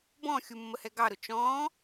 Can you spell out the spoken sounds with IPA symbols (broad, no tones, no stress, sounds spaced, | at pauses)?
b ɔ̃ xʲ u mː ə h ɛ ɡ ɑ ɾ ʊ t͡ʃ ɔ̃ː